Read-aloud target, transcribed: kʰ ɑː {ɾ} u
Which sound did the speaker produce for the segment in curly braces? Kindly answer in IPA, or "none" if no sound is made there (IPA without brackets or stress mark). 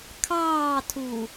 tʰ